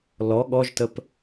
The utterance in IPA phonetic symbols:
l ɔ ɠ ɔ ʒ t ə p

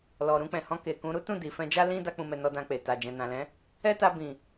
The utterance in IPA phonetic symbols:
l ɔ˨ ɾ ũ˧ k͡p ɛ̃˨ h ɔ̃˧ k e˨ k ũ˨˦ ɾ u˦ t ũ˦˨ d i˨ f ɛ̃˧ d͡ʒ a˦ l ĩ˦ d a˦ k͡p ũ˧ m ɛ˧ n ɔ˧ d ã˧ k͡p e˨ t a˨ d͡ʒ ɛ̃˨ n ã˨ l ɛ̃˨˦ | ɛ˦ t a˧ b ĩ˨

